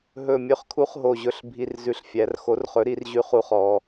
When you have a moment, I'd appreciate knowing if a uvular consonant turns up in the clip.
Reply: yes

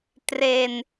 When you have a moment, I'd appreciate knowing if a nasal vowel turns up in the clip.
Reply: no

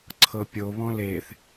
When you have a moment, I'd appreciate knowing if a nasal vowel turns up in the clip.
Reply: yes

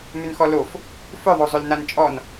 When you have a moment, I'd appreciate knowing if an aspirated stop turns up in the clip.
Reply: no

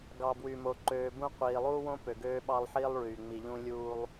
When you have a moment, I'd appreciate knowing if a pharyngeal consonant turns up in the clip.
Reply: yes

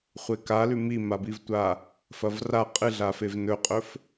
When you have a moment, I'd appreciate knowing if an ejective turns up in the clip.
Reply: yes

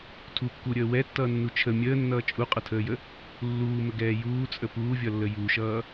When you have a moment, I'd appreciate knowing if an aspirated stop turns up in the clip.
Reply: yes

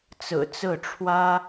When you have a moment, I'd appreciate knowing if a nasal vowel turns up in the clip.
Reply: no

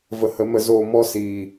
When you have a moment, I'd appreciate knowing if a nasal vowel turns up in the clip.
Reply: no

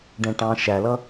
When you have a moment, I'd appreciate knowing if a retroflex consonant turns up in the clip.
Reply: yes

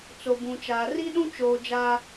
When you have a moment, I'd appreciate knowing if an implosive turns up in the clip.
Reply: yes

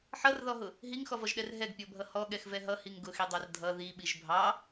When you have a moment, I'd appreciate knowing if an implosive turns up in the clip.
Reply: yes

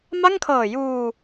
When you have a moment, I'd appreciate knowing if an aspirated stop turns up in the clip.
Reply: yes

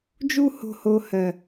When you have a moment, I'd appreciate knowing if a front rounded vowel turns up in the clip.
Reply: no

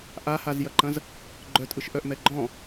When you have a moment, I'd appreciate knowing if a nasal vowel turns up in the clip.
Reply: yes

